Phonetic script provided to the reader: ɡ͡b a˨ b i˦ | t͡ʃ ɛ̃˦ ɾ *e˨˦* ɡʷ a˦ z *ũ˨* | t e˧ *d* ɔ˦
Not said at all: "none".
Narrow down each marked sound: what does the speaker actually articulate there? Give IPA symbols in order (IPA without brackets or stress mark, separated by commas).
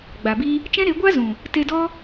e˨˦, ũ˨, d